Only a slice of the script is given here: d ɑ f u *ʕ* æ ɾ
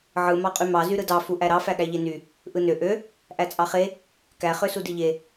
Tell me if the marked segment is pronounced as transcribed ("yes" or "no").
no